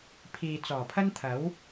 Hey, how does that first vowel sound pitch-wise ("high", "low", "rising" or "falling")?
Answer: low